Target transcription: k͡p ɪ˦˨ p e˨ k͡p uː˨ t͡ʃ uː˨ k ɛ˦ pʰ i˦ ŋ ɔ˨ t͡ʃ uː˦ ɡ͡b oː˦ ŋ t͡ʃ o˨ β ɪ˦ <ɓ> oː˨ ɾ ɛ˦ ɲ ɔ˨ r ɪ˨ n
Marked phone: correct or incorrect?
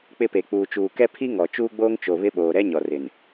correct